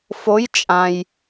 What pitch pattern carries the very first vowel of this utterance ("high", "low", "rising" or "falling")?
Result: rising